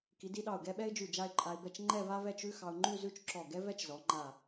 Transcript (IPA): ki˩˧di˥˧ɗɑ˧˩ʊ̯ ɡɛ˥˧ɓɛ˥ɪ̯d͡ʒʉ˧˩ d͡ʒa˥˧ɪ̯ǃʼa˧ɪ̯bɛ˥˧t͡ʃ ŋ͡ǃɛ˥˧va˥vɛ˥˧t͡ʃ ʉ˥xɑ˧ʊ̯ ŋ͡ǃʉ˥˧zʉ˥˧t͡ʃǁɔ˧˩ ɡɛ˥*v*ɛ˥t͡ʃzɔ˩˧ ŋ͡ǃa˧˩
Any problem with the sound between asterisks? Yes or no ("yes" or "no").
no